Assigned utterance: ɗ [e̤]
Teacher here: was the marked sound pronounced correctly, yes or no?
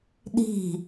no